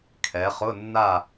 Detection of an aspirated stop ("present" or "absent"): present